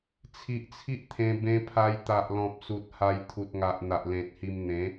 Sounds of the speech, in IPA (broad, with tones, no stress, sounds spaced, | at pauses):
t͡sʰ i˨ ʔ t͡sʰ i˦ ʔ t̪ʰ ẽ˧ b ẽ˧ pʰ a˧ j t̪ a˨ ʔ l ɔ̃˨ p̚ s u˨ t̚ h a˧ j t̪ʰ u˨ t̚ ŋ a˨ ʔ n̪ a˨ ʔ l ẽ˨ t̚ h i˧ m n̪ ẽ˨˦